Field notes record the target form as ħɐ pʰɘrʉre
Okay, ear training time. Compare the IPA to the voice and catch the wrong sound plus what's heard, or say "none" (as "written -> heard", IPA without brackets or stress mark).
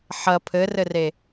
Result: ʉ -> ɘ